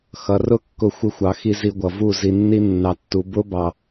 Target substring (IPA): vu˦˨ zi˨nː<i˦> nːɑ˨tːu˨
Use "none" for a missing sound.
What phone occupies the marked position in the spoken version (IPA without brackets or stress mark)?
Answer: i˧